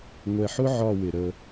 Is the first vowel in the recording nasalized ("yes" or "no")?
no